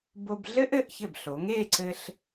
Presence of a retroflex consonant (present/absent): absent